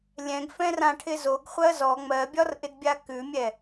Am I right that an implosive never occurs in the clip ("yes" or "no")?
yes